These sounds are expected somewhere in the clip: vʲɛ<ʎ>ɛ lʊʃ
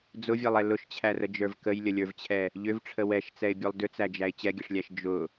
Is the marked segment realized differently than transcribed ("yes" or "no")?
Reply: yes